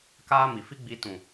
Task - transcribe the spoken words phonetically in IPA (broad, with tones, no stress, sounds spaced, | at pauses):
k aː˦ m i˨ f i˦ ɡ͡b iː˧ t ũ˨